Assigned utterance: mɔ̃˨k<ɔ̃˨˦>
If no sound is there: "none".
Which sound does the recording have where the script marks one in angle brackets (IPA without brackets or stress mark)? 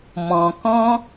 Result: ɔ̃˦